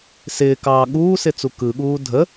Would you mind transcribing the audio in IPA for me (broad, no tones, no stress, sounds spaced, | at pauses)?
s ɪː k ɑː ɠ uː s ɪ t͡s u k ɯ ɠ uː dʱ ə